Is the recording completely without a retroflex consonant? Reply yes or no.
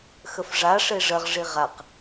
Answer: no